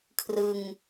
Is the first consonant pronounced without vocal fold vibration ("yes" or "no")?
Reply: yes